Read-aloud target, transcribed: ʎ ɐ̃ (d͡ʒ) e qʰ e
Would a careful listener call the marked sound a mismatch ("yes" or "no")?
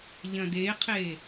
yes